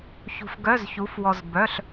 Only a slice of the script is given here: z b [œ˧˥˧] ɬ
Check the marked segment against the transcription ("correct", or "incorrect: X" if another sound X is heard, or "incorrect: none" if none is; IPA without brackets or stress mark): correct